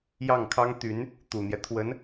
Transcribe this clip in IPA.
j ɑ˥˩ ŋ kʰ ɑ˥ ŋ t̪ y˧˥ n | t̪ u˨˩ n̪ j ɛ˦ t̪ʰ w ə˧˥ n

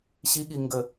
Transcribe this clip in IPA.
ɕ i ɠ i ŋ ɡ ə

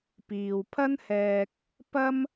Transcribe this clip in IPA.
p iː˨ w pʰ ɐ˥ n h ɛː˧ k̚ | p ɐ˥ m

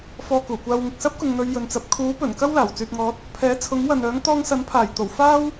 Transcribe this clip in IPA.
f ɔː˧ k uː˨˩ kʷ aː˧ w ŋ ɪ˨ k̚ s ɐ˥ p̚ k ʊ˨ ŋ n̪ ɵ˨˧ ɥ j ɵ˨ n t͡s ɐ˨ p̚ kʰ uː˨˥ p ɵ˨˩ n k ɐ˥ w l aː˨˩ w t͡s yː˨ t̚ ŋ ɔː˨˥ t̚ | pʰ ɛː˨˥ t͡sʰ ʊ˨˥ ŋ w ɐ˨ n œː˨˥ ŋ t̪ ɔː˧ ŋ s ɐ˨˥ n pʰ aː˨˩ j t̪ o˨˩ w f aː˥ w

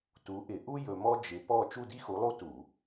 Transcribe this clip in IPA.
t u˨˥ ʔ ɪ˧˩˧ ʔ u˥ j ɵ˧ m ɔ˥ d͡ʒ ɪ˨˥ p ɔ˥˨ t͡ʃ u˥˨ d i˥ x u˨˥ lˠ u˥ t u˧˩˧

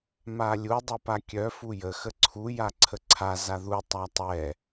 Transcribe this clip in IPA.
m a lʲ u dˤ u p a kʲ œ f u j ə x ə ǀʰ u j a ǀʰ ə ǀʰ a z a ð u tˤ a tˤ ɛ

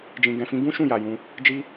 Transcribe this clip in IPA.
d͡ʒ ĩ˨ ɡ ɛ̃˨ f ĩ˧ ɡ ũ˦ ʃ ũ˦˨ j a˨ j ũ˧ | d͡ʒ i˧

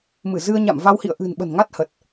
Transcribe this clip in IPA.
m ɨ˧˩ z ɨ˧ ə̯ ɲ a̰˧˨ m v a˧ w h ḭ˧˨ ə̯ ʔ ɨ̤˨˩ n ɓ ə̤˨˩ n ŋ a˦˥ t̚ h ə˨˩ t̚

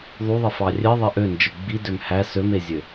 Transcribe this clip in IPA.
ðˤ u ðˤ i f ɑ rʲ e ðˤ e ʔ ø n d͡ʒ ɯ ɡ͡b i d ø m h æ s ø m e zʲ ø

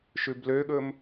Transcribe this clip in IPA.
ʃ ʉ b l ø ɠ ɵ m

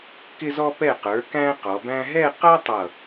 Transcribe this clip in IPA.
k ɪ˧ z ɔ˧ p ɛ˧˩ q ə˞˩˧ k æ̃˥ q ɔ˩˧ b æ̃˥ ɦ ɛ˥˧ q ʌ˥ tˤ ʌ˧˩

